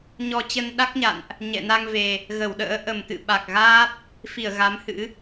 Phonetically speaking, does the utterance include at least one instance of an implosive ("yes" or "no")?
yes